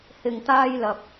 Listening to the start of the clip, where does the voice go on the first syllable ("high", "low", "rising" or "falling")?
low